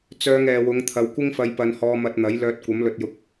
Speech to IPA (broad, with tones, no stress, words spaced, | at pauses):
t͡sœː˧ŋɛː˨wʊ˨˧ŋ t̪ʰɐ˨wkʷɪ˥ŋfɐ˧j pɐ˧nhɔː˧mɐ˧t̚ n̪ɐ˨˥j lœː˧t̚kʷɐ˨˥mlɵ˧t̚jʊ˧k̚